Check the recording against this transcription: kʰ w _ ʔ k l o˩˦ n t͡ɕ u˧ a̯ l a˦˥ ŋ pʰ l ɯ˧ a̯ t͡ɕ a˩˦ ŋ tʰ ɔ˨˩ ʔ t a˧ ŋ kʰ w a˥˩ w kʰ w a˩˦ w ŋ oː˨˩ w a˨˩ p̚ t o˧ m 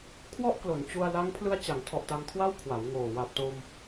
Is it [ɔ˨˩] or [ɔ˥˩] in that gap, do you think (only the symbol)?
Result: ɔ˥˩